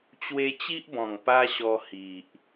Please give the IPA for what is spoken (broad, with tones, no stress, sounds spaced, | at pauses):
t͡ɕ w e˧ t͡ɕ i˦ ʔ b ɔ̃˨˩ ŋ p a˦ ɕ ɔ˧ h i˨ ʔ